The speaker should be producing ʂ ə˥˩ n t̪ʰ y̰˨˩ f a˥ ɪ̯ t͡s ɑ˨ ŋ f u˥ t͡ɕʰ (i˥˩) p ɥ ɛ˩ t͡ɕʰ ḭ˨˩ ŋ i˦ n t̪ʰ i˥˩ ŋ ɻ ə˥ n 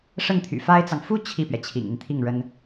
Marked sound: correct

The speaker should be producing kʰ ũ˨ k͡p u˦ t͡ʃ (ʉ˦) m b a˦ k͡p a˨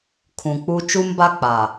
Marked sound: incorrect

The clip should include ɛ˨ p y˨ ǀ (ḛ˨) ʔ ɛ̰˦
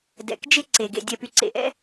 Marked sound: correct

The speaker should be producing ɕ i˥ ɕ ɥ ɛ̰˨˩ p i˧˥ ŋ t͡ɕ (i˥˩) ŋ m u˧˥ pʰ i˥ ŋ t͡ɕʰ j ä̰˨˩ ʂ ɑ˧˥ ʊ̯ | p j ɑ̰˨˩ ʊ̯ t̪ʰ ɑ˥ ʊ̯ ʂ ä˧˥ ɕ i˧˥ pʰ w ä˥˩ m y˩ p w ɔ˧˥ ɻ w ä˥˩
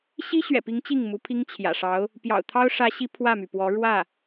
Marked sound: correct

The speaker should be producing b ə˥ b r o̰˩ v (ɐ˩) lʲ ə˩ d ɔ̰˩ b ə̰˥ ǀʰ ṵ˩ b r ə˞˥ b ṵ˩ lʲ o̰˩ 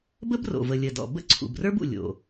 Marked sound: incorrect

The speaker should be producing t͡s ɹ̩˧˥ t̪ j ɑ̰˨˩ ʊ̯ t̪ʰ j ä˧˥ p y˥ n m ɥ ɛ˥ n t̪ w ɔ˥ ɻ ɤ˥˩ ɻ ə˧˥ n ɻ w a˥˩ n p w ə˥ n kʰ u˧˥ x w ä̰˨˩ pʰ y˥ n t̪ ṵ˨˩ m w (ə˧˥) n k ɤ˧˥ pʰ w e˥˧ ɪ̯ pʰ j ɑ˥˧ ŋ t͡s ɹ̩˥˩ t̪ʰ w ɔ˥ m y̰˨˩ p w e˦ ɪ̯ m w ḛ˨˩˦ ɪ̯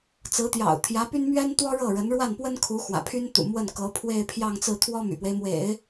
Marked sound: incorrect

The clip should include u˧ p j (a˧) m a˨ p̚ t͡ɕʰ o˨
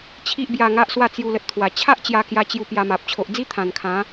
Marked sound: correct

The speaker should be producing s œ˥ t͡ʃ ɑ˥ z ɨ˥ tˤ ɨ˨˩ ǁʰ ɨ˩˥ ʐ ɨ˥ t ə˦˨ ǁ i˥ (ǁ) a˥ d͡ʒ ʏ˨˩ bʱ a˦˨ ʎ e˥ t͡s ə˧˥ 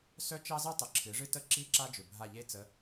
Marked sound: correct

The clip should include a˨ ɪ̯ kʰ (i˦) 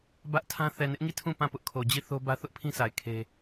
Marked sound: incorrect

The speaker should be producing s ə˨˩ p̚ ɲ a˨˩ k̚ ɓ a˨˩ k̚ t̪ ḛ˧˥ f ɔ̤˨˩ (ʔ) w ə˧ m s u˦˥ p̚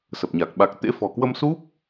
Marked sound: incorrect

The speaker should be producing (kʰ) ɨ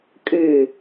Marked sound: incorrect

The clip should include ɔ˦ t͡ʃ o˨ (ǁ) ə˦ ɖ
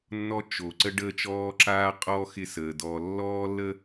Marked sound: incorrect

